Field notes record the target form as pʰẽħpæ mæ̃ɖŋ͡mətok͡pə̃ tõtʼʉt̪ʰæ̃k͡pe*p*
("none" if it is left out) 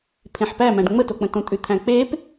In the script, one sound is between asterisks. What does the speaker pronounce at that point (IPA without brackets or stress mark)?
p